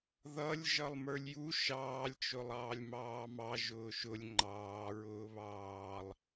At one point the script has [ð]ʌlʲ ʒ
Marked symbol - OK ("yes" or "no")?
yes